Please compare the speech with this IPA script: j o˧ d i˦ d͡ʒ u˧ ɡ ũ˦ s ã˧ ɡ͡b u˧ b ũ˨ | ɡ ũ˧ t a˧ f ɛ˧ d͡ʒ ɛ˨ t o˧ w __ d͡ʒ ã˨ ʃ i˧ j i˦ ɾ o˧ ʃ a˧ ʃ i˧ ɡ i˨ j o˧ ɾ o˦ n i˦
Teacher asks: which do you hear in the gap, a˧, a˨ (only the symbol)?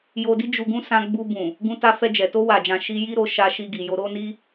a˨